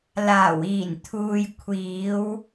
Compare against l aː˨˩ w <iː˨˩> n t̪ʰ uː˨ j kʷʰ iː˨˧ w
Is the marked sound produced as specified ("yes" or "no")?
yes